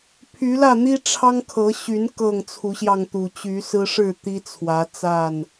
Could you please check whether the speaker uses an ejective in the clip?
no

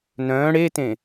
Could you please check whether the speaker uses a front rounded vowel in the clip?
yes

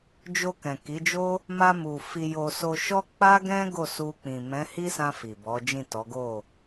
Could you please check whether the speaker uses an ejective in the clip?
no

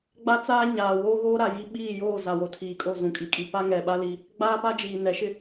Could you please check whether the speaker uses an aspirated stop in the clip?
yes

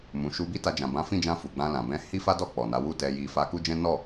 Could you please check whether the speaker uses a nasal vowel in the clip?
yes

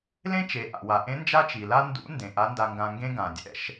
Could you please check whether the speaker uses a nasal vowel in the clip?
yes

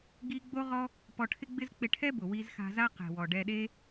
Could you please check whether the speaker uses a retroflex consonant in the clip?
yes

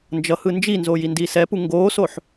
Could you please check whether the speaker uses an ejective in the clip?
no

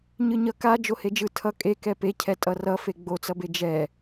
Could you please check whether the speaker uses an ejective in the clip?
yes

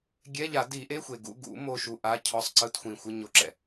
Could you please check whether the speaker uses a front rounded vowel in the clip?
no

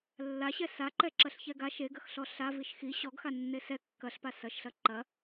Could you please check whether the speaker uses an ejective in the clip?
no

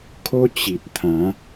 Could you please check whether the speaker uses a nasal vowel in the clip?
yes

